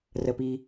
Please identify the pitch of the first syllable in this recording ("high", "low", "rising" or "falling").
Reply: low